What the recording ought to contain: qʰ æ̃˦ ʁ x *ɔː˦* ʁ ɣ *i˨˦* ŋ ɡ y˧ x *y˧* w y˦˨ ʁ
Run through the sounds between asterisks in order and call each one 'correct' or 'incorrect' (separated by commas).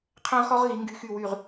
incorrect, correct, incorrect